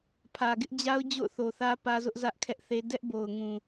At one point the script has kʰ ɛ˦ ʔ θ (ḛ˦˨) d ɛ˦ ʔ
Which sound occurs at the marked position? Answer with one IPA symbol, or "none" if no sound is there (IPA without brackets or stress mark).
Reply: e˦